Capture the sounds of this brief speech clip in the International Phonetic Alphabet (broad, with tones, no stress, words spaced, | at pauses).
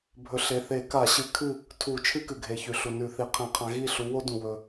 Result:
bʱɵ˨˦ɬe˩˧˩ θe˧˩˧ka˧˩˧ɕɨ˨˦kʰɨ˥˩ | tʰu˧˩˧ t͡ʃʰɨ˦kɨ˩ɡʱe˩çʉ˩ ɬu˩nʉ˧˩˧θi˩˧˩ qʰẽ˧˩˧qʰã˨˦ ɣi˥˩ɬu˨˦ wo˦dũ˩ wɵ˩